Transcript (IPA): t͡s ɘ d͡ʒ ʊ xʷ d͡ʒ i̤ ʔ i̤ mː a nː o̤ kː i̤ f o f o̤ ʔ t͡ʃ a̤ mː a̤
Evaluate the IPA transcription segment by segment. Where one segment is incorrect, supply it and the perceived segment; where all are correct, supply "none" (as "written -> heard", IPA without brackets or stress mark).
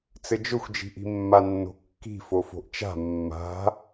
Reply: none